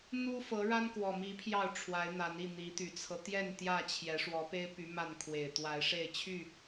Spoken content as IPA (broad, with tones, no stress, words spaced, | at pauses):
n̪u˦ fɤ˨˦ɻa˦nkwɔ˨˩mi˨˦ pʰjɑ˥˨ʊ̯ʈ͡ʂʰwa˨˦ɪ̯n̪a˨˦n i˥˨n̪i˨˦t̪y˨˩t͡sʰɤ˦ t̪jɛ˥˨nt̪jä˥˨ t͡ɕʰjɛ˨˦ ʂwɔ˨˦pe˦ɪ̯py˨˦ ma˥˨nkʰwe˨˩ɪ̯t̪wa˨˦ɪ̯ʂe˥˨ɪ̯ t͡ɕʰy˥˨